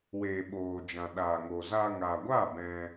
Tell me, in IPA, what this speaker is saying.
w eː˨ ɓ oː˨ d͡ʒ ã˨ ɗ aː˨ ŋ o˨ z aː˧ ŋ aː˨ ɡʷ aː˦˨ b ɛ̃˧

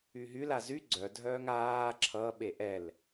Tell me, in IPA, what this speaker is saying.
y ɦ y l a z y ɡ͡ǀ œ dʱ œː ŋ aː ǁʰ ʌ ɓ e ʔ ɛ l

